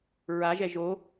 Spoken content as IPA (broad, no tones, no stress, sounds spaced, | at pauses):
ɹ a ʒ ɛ ʒ o